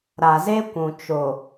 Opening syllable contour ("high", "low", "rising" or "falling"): low